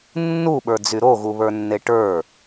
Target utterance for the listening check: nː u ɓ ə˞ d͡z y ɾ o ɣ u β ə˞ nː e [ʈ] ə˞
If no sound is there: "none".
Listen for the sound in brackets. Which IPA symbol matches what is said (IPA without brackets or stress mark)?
ʈ